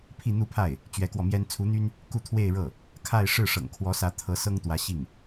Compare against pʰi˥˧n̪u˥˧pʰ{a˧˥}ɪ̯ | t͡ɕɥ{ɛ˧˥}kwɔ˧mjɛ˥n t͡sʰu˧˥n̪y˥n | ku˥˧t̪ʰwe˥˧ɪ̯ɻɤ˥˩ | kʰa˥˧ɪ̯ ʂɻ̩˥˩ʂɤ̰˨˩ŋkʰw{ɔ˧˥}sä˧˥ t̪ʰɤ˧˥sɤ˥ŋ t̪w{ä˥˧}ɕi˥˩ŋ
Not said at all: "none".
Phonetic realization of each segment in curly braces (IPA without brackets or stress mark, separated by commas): a˥˩, ɛ˧˥, ɔ˧˥, ä˧˥